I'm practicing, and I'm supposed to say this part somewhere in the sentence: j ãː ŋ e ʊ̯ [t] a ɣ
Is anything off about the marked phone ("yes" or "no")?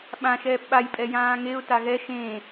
no